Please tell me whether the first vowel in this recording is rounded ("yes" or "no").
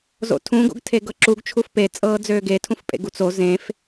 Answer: yes